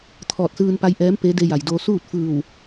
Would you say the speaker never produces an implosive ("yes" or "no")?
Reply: yes